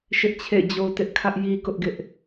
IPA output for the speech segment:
ʃ ɪ˦ ʔ t͡ɕʰ ḛ˦˨ ɪ̯ d͡ʑ o˦ t ɪ˦ ʔ kʰ ä˦ ʔ j i˦ k ʊ˦ ʔ ɡ ɪ˦ ʔ

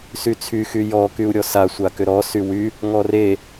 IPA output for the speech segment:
s y t͡sʰ y x y j ɔ k y u̯ ɾʲ ɔ s a sʷ a k ʏ ɾ ɔ s y w y | ŋ ɔ r e

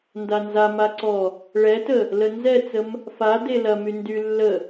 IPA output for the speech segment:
n d a n z a m a ǀ ɔ | ɭ ɛ t ə | l ə n z ɛ t͡s ə m | f a d e l ɐ m y n d y lː ə

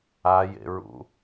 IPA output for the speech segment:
a j ḛ ɹ ṵ

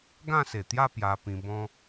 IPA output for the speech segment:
ɡ ã˥˧ s e˨˩ t̪ j a˥˧ p j a˧ p ĩ˧ b ɔ̃˦

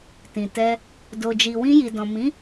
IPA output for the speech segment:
t ĩ˨ t ɛ˧ | d o˨ d͡ʒ i˨ w ĩ˧ j i˨ d ɔ̃˨ m ĩ˨˦

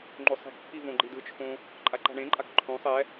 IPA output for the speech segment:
ŋ͡ǃ o sˤ i̤ k pʰ i v õ ɡ͡ǃ i d ɯ t͡ʃʰ õ | ǃʼ a ǃ a̤ ɳ ẽ ǃʼ a k ǃʰ õ sˤ ɛ

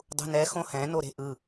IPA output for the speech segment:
dˤ ṳ n ɛ x õ h ɛ̃ n o ɾ e̤ ʔ ɯ

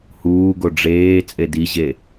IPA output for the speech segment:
h uː ɡ o ɖ͡ʐ eː t͡sʼ e d i ʑ e

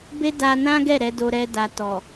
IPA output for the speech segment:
b e˦ d a˧ n ã˦ ɡ ɛ˦˨ ɾ ɛ˨˦ d o˧ ɾ ɛ˧ d a˨ t ɔ˨

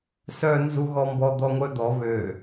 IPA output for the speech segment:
s œ n z u ɣ ɔ m b ɔ d̪ ɔ ŋʷ œ d̪ ɔ β ø

